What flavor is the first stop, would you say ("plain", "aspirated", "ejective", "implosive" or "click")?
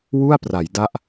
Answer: plain